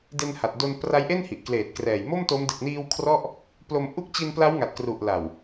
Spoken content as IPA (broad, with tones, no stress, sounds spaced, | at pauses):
d e˧ n h a˨˩ t̚ d o˧ n p r a˦˥ j ʔ e˥˩ n h i˨˩ ʔ k l eː˨˩ t̚ k r ɛː˨˩ j m o˥˩ m t o˦˥ m d ɯ˨˩ k̚ n iː˧ w kʰ r ɔ˥˩ ʔ | p l o˧ m ʔ u˦˥ k̚ t͡ɕ i˧ n p l a˦˥ w ŋ a˨˩ t̚ k r u˨˩ ʔ l a˨˩ w